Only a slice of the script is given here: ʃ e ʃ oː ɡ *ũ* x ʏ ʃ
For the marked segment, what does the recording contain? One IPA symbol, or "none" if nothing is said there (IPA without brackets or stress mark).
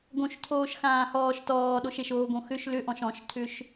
õ